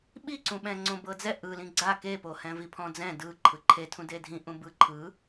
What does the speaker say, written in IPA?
ɓ i ǀ ũ ɓ ɛ̃ ŋ͡ǀ õ b ɤ d͡z ɛ ʔ ɯ l ĩ ɡ͡ǀ a k e p o h ɛ̃ v i pʰ ɔ̃ d͡z ɛ̃ d ɯ ǃʰ ɯ ǃʰ e tʰ ũ d e dʱ ĩ ʔ ũ b ɯ ǃʰ ɯ

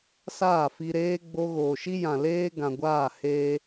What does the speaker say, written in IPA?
s aː˦˨ f i˧ ɾ eː˦ ɡ͡b o˧ ɣ oː˨ ʃ i˦ j ã˨ l eː˦ ɡ ã˨ ɡʷ aː˦˨ h eː˧

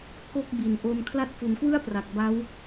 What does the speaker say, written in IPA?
k o˥˩ k̚ b i˨˩ n ʔ o˧ n kʰ l a˦˥ t̚ f u˩˦ n k w ɯ˥˩ a̯ p r a˨˩ k̚ b a˦˥ w

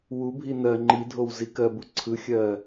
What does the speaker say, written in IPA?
w u bʱ i n ɜ ŋ͡ǃ i dʱ o w z i k ɜ b u ǀʰ ɯ xʲ ɜ

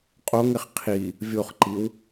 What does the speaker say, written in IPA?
qʼ o ŋ ɪ χ qʰ i | vʲ o χ ǃ i w

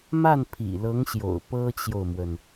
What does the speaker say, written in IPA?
m a˥˩ n pʰ ḭ˨˩ l ɤ˧˥ ŋ ɕ j o̰˨˩ ʊ̯ p ɤ˥ t͡ɕ j o˨ ʊ̯ m w ə˩ n

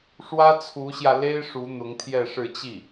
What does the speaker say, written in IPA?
ʂ w ä˥ t͡sʰ u˧˥ ɕ j ä˧ l e˥ ɪ̯ ʂ u˧˥ n̪ ʊ˧˥ ŋ t̪ʰ j ɛ˥˧ ʂ ɻ̩˥˧ t͡ɕ i˥˩

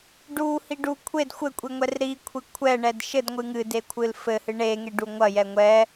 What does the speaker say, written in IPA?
ɖ u h i ɖ u kʷʰ e d xʷ ɘ kʷʼ i ŋʷ ɛ r ɾ i kʷʰ i kʷʰ ɛ ɳ ɛ d ʃ ɘ d ŋʷ ɨ ŋ ɨ d e kʷʰ ɨ l f ɘ h ɨ ɳ e ŋ e ɖ u ŋʷ ɐ j ɛ ŋʷ ɛ

